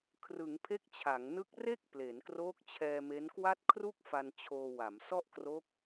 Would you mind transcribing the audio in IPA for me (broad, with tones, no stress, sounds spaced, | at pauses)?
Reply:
kʰ r ɯ˩˦ ŋ pʰ e˦˥ k̚ t͡ɕʰ a˩˦ ŋ n ɯ˦˥ k̚ r e˥˩ k̚ p l e˩˦ n k r oː˦˥ k̚ t͡ɕʰ ɛː˧ m e˦˥ n k w a˥˩ t̚ kʰ r u˥˩ k̚ f a˧ n t͡ɕʰ oː˧ w a˩˦ m s ɔ˥˩ ʔ k r o˦˥ k̚